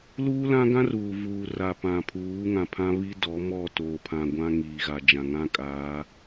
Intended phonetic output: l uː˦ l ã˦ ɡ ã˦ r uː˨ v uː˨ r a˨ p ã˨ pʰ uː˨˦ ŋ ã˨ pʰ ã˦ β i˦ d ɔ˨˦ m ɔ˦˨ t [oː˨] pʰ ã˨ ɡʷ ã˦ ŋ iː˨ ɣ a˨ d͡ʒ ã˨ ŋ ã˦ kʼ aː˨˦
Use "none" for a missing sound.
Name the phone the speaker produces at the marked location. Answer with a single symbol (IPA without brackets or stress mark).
oː˨